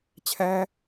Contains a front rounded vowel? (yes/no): no